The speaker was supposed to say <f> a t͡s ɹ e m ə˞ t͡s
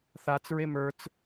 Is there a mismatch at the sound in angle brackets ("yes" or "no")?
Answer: yes